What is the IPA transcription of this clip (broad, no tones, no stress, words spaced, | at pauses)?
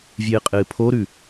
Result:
vʲɨːqʼɨːpʰoɾʉ